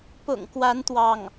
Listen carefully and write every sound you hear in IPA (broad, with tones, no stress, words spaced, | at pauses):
pʊ̰˨˩ŋkwa˧˥n t̪wɑ˥˩ŋ